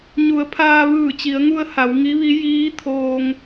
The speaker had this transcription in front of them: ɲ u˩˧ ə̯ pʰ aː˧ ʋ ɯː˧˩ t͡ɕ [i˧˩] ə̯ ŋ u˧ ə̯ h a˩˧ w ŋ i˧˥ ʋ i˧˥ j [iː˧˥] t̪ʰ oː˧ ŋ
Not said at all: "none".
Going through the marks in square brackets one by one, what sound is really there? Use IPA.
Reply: i˩˧, iː˧˥

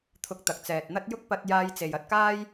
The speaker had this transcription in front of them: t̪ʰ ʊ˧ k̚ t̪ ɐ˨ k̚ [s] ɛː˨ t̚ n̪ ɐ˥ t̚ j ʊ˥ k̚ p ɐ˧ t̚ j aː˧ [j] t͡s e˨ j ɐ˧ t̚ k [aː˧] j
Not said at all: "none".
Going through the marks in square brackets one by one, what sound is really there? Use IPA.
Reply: t͡s, j, aː˥

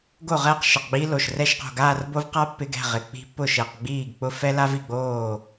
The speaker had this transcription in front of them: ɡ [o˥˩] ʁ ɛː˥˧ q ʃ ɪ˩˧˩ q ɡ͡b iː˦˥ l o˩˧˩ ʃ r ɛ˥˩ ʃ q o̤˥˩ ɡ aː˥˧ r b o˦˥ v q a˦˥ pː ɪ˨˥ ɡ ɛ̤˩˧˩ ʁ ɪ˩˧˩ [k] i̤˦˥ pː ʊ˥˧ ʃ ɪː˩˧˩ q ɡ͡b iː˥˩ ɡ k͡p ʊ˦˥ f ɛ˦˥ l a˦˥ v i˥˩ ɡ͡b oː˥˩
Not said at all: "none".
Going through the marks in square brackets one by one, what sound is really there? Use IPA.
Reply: o˥˩, k͡p

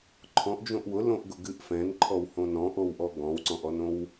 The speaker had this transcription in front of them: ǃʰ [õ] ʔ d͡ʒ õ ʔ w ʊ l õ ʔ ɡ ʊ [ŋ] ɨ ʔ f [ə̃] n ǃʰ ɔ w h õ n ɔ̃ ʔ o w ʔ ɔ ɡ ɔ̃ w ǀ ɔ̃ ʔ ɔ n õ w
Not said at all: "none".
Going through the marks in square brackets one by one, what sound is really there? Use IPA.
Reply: ɔ̃, ɡ, ɛ̃

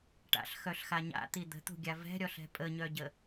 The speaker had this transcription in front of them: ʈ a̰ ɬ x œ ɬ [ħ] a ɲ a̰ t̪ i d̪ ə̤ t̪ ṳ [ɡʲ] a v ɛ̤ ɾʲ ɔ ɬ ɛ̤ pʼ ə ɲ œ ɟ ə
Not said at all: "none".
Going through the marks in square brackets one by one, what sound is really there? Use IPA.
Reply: x, ɡʲ

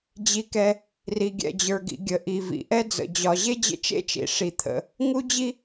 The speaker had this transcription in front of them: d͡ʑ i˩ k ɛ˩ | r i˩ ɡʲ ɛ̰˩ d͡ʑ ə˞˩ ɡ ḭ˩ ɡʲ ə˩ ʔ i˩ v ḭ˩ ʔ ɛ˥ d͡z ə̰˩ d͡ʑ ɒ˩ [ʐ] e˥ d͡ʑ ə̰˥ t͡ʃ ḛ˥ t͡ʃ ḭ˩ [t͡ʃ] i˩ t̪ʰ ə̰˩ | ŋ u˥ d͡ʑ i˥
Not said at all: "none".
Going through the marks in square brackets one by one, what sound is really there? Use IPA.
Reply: ʑ, ʂ

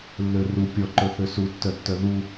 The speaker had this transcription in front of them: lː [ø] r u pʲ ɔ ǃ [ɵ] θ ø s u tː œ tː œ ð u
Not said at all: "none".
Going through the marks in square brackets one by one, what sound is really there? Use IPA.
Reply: ø, ɵ

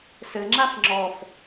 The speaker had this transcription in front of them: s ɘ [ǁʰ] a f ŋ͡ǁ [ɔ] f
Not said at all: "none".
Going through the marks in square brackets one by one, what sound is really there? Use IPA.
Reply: ŋ͡ǁ, ɔ

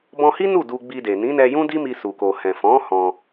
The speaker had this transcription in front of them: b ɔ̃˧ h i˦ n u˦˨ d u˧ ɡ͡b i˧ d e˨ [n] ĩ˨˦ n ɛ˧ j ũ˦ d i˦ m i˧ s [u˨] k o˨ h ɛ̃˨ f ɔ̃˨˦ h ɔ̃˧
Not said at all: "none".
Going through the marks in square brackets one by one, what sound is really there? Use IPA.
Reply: n, u˨

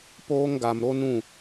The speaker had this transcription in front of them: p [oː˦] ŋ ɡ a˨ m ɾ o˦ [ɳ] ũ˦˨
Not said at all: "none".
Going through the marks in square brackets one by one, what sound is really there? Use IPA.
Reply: oː˦, n

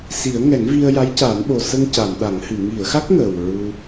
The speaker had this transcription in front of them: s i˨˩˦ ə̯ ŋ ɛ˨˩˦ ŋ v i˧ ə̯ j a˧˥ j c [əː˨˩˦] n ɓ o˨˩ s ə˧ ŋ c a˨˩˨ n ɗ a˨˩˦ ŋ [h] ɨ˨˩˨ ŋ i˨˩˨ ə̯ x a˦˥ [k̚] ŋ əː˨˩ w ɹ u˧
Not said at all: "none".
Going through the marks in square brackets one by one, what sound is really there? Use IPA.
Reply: aː˨˩˦, h, k̚

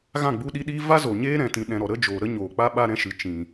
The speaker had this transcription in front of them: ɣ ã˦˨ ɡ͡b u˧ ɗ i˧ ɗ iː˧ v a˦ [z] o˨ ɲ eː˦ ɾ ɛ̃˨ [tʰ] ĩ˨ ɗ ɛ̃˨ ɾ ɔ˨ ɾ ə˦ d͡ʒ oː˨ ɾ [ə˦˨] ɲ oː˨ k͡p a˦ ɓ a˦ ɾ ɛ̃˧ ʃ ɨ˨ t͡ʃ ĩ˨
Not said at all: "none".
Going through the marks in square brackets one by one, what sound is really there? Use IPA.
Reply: z, t, ə˦

